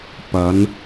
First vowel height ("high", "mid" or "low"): low